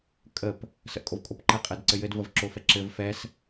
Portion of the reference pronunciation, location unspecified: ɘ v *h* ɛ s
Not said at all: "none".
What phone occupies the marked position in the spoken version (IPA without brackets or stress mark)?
f